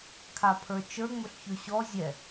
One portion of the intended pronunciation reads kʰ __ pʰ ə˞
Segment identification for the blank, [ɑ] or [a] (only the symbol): a